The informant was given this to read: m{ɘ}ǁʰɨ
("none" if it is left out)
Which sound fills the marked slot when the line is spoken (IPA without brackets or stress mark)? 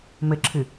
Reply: ɘ